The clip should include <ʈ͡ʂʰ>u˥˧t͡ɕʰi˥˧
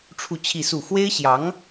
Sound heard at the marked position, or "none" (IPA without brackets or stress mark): ʈ͡ʂʰ